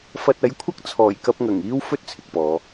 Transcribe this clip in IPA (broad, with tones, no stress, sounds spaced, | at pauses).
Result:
f ɐ˧ t̚ ɐ˨˥ j kʷʰ ɐ˥ k̚ t͡sʰ ɔː˨˩ j k ɐ˧ p̚ ŋ ɐ˨˩ ŋ iː˥ w f ɵ˥ t̚ t͡sʰ ɪ˨ k̚ p ɔː˨˧